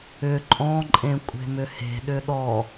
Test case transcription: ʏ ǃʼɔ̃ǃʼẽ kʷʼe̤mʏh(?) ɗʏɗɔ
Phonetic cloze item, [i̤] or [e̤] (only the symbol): e̤